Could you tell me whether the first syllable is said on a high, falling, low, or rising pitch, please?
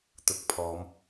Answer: low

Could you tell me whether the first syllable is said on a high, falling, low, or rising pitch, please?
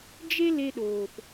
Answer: high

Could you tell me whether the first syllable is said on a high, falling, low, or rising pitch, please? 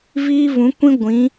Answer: high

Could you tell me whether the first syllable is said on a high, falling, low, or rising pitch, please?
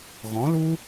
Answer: rising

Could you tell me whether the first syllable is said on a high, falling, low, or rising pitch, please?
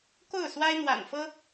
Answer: falling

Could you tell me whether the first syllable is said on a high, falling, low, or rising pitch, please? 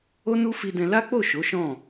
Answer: high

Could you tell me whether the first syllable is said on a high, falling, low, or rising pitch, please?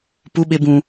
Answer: high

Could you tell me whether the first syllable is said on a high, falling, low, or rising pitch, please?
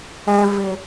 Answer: high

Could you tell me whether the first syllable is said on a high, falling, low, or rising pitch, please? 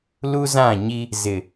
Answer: high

